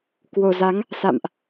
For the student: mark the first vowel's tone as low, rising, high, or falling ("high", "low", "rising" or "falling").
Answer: low